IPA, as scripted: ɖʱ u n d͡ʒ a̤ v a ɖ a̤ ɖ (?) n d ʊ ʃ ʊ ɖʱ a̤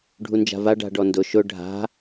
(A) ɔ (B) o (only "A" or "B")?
A